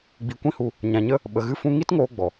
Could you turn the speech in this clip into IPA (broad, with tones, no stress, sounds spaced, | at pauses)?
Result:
ɡ͡b i˧ kʷ ĩ˦ h u˧ | ɲ ã˧ ɲ ə˦ | ɓ ə˧ ɣ ɨ˦ f ũ˦ ŋ i˦ t ŋ oː˧ ɡ͡b ɔ˨